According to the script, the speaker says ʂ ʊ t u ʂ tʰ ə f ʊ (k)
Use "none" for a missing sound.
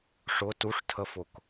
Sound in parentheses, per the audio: k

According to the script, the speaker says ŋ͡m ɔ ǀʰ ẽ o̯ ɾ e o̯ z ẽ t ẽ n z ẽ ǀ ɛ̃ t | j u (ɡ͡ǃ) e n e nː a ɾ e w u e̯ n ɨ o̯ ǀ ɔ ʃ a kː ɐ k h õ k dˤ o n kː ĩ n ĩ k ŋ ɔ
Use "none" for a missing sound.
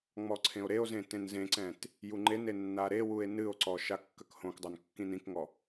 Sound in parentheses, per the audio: ŋ͡ǃ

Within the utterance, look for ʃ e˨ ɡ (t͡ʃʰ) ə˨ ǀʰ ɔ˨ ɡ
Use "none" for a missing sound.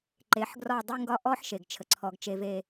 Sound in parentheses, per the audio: t͡ʃʰ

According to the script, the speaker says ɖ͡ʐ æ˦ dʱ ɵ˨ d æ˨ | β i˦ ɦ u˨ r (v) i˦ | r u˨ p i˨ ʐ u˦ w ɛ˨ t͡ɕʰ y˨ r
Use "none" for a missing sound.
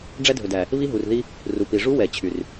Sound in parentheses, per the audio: ð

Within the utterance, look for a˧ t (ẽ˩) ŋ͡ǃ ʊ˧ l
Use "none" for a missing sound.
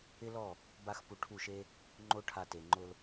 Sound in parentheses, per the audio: e˩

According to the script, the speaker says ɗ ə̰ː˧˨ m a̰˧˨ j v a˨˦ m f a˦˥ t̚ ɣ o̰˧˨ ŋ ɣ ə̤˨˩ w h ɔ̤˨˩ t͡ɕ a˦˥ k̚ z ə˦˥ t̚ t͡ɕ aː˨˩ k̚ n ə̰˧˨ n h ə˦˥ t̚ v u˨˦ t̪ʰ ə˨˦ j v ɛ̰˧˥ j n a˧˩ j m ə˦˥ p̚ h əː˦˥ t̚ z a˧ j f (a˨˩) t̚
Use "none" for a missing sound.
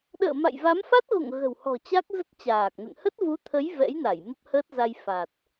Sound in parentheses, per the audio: a˨˩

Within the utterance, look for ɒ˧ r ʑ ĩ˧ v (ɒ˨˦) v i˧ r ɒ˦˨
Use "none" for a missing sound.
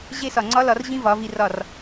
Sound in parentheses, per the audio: ɒ˨˦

